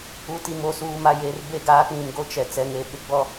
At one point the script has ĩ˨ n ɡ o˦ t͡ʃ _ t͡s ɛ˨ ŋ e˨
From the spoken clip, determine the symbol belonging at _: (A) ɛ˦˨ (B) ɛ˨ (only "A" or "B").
B